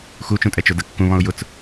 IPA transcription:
x u t͡ʃ ũ tʼ ɛ t͡ʃ ʊ d ə kː ũ β ɔ̃ ʊ̯ j ʊ t͡s

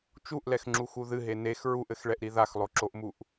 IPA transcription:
t͡ʃ u ʔ l ɛ x ŋ͡ǁ u x u ð ɨ ɦ e n e x ɹ u ʔ ɘ x ɭ ɛ ʔ ɾ i ð a x lˠ o ǁ o ʔ m u ʔ

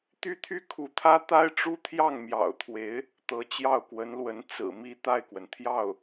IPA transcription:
t̪ y˥ t̪ʰ y˥ kʰ u˧˥ t̪ʰ ä˥ t̪ a˥ ɪ̯ ʈ͡ʂ u˥ t̪ʰ j ɑ˥˩ ŋ m j ɑ̰˨˩ ʊ̯ t̪ʰ w e˧˥ ɪ̯ | t̪ ɤ˧˥ t͡ɕ j ɑ˥˩ ʊ̯ k w ə˧˥ n l w ə˧˥ n t͡s ɹ̩˨˩ m i˥˧ t̪ a˥˩ ɪ̯ k w ə˩ n t̪ʰ j ɑ˥˩ ʊ̯

